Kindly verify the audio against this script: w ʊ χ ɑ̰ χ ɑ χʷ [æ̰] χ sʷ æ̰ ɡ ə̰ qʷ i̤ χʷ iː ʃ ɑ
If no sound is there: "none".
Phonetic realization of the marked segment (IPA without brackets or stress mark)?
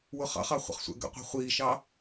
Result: ə̰